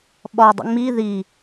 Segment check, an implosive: present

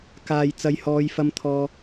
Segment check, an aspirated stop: present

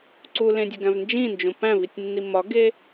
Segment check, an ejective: absent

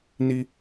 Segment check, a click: absent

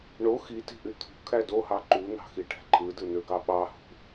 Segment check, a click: present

